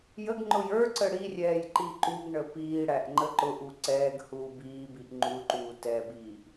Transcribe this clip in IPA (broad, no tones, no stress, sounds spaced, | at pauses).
j ə ɡ ŋ͡ǃ ʊ j ə˞ ǀ ə ɽ i rʲ ɛː j ǃ i ǃ u ɡ ɳ ə p iː ɽ æ ʔ ŋ͡ǃ ə ǃ ʊ ʔ u ǀ ɛː ɡ h uː b iː b i ʔ ŋ͡ǃ u ǃ uː t ɛ b iː ʔ